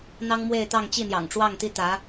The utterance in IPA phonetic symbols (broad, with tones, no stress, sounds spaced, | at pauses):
n̪ ɑ˥ ŋ m w e˥˧ ɪ̯ t̪ ɑ˥˧ ŋ t͡ɕ i˥˩ n̪ j ɑ̰˨˩ ŋ ʈ͡ʂ w ɑ˥˩ ŋ t̪ i˥ t̪ ä˧˥